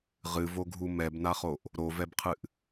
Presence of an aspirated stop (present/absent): present